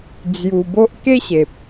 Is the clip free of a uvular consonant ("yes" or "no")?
yes